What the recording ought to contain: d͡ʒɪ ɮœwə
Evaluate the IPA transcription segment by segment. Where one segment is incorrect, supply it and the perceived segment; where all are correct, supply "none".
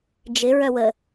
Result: ɮ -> ɹ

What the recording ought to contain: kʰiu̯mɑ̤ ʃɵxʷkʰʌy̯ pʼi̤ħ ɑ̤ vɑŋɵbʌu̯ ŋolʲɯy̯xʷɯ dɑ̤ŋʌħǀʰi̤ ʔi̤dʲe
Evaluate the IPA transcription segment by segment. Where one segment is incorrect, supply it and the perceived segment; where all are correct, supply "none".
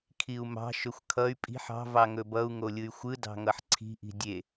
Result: none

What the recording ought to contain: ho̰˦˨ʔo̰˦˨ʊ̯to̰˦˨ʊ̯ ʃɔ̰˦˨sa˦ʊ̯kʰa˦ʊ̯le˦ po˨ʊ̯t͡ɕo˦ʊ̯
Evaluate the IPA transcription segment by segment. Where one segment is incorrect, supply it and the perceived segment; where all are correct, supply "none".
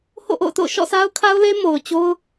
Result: p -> m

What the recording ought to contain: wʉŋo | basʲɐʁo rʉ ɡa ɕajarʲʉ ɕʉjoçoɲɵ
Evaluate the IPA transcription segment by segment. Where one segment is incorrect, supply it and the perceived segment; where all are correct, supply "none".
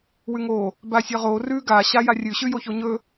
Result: none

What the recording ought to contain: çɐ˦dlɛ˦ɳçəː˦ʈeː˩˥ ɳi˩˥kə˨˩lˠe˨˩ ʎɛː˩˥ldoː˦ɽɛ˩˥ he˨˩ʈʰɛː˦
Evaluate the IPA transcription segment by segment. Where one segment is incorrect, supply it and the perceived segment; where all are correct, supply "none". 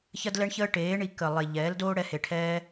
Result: none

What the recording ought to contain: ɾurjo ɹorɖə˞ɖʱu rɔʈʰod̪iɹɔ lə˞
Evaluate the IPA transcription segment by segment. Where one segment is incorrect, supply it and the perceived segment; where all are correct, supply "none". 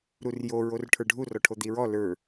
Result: ɖ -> ʈʰ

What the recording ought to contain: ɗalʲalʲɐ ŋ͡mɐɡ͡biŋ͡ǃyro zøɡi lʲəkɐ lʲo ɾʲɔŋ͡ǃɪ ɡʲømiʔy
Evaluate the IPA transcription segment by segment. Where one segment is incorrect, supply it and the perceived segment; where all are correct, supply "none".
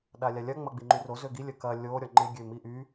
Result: none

